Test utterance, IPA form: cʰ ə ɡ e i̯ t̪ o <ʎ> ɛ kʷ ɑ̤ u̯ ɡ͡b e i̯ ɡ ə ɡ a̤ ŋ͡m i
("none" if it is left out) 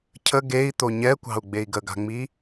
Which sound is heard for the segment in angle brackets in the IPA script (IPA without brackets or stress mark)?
ɲ